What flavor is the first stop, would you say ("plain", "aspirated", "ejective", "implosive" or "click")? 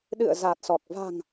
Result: implosive